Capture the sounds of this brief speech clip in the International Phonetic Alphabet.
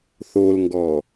θ o l ŋ ɡ ɔ

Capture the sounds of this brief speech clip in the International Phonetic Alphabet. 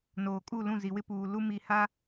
n oː˨ kʼ u˦˨ l ũ˦˨ z i˨ w ɪ˦ p uː˨ l u˦ m i˨ h a˦

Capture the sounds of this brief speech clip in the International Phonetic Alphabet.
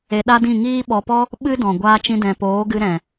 e˧ ɗ a˦ d ĩ˦˨ ŋ iː˦ ɓ ɔ˧ p ɔ˦ | ɓ ɨ˦ d ɔ̃˨ ɡʷ aː˧ t͡ʃ ĩ˧ d ɛ̃˨ p oː˨˦ ɡ ɨ˧ ɾ ɛ̃˨

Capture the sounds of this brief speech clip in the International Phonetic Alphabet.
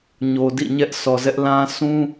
ɲ o˨ d ḭ˦˨ ɲ ɛ˦ ʔ sʰ ɔ˨ z ɛ˦ ʔ l ã˦ s ũ˦

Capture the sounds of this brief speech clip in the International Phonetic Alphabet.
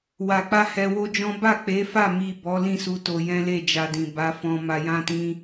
w a˨ k͡p a˧ h ɛ˧ w o˦ d͡ʒ ɔ̃˦ b a˦˨ k͡p e˨˦ f a˦˨ m i˨ b ɔ˨˦ l ĩ˦˨ s u˧ t o˧ j ɛ̃˦ l e˦˨ d͡ʒ a˧ d ĩ˨ b a˨˦ f ɔ̃˧ m a˧ j ã˦ t ĩ˦

